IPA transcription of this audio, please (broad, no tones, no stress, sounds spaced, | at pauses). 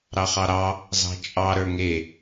ɾ ɑ χ ɑ ɾ ɑ | z ɑ̤ t͡ʃʼ ɑ ɾ ə˞ ŋ e